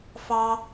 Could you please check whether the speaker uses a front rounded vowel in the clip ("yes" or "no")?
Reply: no